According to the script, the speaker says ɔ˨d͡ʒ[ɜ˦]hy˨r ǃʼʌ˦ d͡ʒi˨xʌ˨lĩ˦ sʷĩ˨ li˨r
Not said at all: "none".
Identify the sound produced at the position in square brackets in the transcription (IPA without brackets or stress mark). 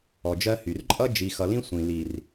ɜ˦